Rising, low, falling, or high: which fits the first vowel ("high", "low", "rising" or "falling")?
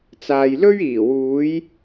low